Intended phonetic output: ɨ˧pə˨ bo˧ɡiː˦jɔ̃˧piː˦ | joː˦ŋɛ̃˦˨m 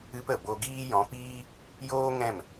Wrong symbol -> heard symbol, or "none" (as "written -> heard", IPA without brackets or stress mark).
none